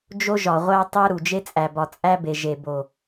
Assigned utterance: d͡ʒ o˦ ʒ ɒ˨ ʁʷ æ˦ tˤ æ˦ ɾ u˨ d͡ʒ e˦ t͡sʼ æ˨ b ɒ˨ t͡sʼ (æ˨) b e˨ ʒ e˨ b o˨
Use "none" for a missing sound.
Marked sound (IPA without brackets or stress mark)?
æ˦